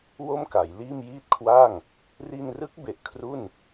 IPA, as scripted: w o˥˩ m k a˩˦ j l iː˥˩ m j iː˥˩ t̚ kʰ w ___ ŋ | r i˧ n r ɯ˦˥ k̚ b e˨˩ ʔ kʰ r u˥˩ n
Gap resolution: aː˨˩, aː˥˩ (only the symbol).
aː˥˩